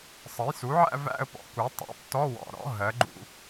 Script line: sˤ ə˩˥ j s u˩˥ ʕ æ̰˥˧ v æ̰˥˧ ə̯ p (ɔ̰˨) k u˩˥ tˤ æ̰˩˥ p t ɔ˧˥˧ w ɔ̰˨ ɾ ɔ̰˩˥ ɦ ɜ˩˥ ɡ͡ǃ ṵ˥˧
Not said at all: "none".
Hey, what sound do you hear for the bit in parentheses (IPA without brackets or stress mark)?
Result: ɔ̰˨